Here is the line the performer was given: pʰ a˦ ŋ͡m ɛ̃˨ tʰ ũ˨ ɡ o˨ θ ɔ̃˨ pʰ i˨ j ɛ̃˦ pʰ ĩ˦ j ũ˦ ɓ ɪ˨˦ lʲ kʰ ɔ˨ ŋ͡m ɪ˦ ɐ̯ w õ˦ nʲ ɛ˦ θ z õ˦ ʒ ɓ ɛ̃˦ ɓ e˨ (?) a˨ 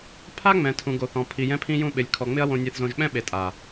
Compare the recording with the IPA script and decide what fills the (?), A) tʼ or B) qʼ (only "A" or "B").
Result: A